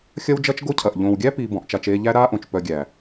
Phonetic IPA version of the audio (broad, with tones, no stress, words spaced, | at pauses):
xʲɐ˦wd͡ʒɐ˦t͡ʃ ɡo˦cʰɐ˨ʔ ʎõː˨wɡʲæ˦ piː˧bɔ̃˨ʔt͡ʃa˧t͡ʃ eː˧ʎæ˦ ɾaː˦ʔõ˨t͡ʃ pœ˧ɡʲæ˨